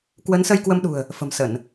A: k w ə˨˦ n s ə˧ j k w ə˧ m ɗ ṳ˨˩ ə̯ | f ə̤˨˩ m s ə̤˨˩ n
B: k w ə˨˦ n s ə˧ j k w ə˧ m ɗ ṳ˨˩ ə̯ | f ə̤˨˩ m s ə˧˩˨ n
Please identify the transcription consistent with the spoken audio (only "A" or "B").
B